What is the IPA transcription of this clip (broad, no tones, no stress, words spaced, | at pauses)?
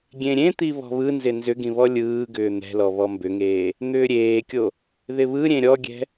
ɡʲẽɾʲẽt̪i βɔ̤βɯnzɪ nzʏɡĩ βɔlʲɯːɡʏː n̪ɛ̤lɔ βɔmbʏŋeː | n̪ʏːɾʲeːkʲo | ðɪβɯɾʲẽ ɾʲɔɡʲɛ̤